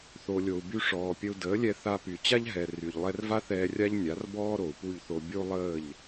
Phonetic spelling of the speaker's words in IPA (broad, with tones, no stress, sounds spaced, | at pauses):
θ o˩ lʲ o˩ u̯ b y˧ ʂ ɔː˩ pʲ ə˧ u̯ d əː˩˥ lʲ ɛ˧ θ a˧ p y˩ t͡ɕ a˥ ʎ ɦ ɛ˩ r y˩ ʎ lˠ ɛ˧ r v a˥ θ ɛː˧ rʲ a˥ ʎ nʲ a˩˥ r b ɔː˥ ɾ o˩ u̯ p u˥˩ ʎ θ o˧ bʲ o˥ u̯ lˠ əː˥˩ ʎ